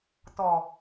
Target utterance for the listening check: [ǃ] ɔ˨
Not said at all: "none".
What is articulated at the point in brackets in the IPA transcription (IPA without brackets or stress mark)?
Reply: t